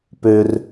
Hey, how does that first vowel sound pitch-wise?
low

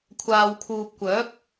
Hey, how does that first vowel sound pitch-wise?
low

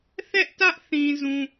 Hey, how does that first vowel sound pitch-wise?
high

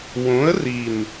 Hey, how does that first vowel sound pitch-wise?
rising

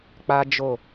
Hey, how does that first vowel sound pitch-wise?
high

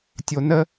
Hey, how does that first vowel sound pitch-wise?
low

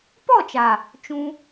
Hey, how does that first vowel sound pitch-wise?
falling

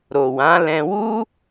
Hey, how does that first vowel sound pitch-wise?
low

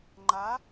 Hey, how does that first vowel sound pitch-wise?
rising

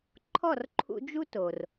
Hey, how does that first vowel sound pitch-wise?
falling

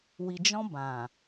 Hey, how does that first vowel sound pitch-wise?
low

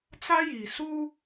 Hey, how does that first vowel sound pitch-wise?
high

